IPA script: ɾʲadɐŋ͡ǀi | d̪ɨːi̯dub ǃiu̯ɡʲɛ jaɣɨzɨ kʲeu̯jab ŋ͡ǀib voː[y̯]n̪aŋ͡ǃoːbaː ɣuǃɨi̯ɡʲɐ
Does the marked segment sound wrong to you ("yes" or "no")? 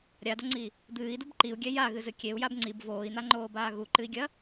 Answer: yes